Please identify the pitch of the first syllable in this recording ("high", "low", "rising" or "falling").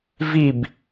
falling